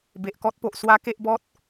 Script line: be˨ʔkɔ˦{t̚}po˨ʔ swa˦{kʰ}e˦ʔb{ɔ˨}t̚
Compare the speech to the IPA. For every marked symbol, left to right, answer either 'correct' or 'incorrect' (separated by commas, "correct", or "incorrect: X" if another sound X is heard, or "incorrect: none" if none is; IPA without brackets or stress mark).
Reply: correct, incorrect: k, incorrect: ɔ˦